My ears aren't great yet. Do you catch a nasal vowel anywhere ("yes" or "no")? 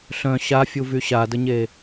yes